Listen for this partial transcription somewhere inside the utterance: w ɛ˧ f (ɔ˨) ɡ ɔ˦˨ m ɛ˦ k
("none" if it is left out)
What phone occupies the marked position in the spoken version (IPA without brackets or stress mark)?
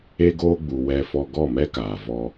ɔ˧